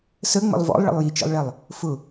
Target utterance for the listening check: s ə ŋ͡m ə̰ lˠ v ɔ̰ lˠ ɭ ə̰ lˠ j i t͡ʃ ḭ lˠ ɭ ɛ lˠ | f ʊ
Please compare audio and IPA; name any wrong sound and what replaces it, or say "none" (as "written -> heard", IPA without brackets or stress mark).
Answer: none